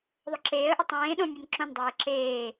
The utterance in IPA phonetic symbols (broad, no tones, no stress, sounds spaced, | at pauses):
ðˤ o ǁ eː ə̯ ʔ ɐ tˤ ẽː ɗ õ mʲ u n ǁ õ n dˤ eː ǁ eː